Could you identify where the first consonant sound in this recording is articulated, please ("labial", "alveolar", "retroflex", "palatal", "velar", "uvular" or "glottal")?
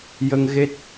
palatal